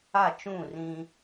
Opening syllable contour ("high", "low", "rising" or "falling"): falling